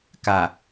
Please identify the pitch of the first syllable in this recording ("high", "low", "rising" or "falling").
low